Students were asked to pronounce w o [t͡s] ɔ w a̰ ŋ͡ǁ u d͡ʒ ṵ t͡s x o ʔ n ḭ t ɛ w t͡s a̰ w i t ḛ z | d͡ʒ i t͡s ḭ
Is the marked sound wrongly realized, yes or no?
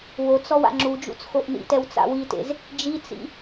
no